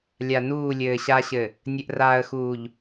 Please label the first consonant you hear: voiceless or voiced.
voiced